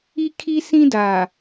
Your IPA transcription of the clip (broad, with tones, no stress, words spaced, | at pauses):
i˦kʰi˦ sĩ˦da˨